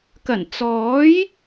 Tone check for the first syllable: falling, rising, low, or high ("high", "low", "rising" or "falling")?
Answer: low